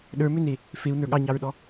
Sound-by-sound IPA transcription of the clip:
ɗə˞mʏne | feu̯nə˞ ɠɑɲɑɹɗɔ

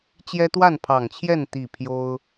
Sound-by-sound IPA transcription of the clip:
t͡ɕjɛ˦t̪wa˥˨npʰɑ˨˩ŋt͡ɕʰjɛ˥˨n t̪i˥˨ pʰjo˦ʊ̯

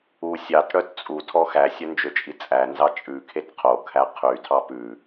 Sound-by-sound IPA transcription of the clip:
u sʲɑtɽœt t͡sʼutʰɔ xæsʲœnd͡ʒøt͡ʃʼi t͡sʼænzɑ t͡ʃʼʉkʰet qʰokʰæ qʰytʰɑ pʉ

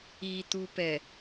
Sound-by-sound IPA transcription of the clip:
it̪upɛ

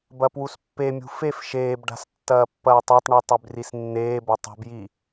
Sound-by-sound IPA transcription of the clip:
bɐpwuspːemʲṳ fef ʃeːbɖa̤s tːɐːpːɐːtˤatˤɳi tˤʉbrisnːeːbɐ tˤṳbji

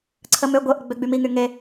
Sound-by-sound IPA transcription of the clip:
ǀʰəmø ɡʷə ʔəɡ͡bøɡ͡bymi ŋyŋe

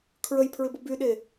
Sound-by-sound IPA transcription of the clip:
kʰɹəjpʰɹɪbʊ byɗe

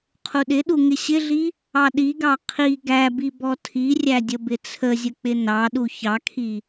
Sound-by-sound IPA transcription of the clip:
qʰuɗɪɗu ŋɪɕɪɮi | ɑɗiɡɑ qʰi ɡæbi bɔtʰirʲæ dʲəbɪt͡sʰəzʲə k͡pɪnɑɗu çɑkʰi

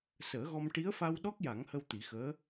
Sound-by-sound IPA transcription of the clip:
səː˨˩˦ɣɔ˧m ʈi˧˥ə̯fa˧wɗɔ˦˥k̚ ja˨˩˦ŋhə˧w t̪i˨˩˦xəː˧˥

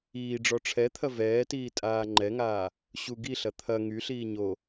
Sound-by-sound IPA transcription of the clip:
iːɖ͡ʐɔ ʈ͡ʂʰɛt̪ʰɐ vɛːtiːtʼaː ŋ͡ǃɛŋaː | ɕu ɡiɬɐ t̪ʰɐ ŋyɬiː ɲo

